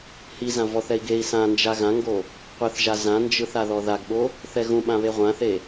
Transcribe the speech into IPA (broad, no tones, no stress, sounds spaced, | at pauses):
h i z ã v ɔ θ ɛ i̯ ɡ e i̯ s ã n d͡ʒ a ɣ ã ŋ ɡ o | qʷ ɛ θ ʒ a z ã n d͡ʒ ɯ θ a ð ɔ ð a ɡ ɓ o | θ ɛ ɣ ũ ɓ ã β e ʁʷ ã θ e